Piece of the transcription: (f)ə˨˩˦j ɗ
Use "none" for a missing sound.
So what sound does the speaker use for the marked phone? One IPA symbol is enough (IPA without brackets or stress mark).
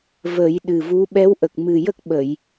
v